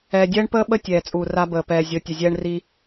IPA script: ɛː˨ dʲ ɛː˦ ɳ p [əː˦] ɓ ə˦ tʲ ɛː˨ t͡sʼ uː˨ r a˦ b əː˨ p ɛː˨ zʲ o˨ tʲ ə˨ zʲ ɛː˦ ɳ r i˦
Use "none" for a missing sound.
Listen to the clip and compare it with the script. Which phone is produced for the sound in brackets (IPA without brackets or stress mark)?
əː˦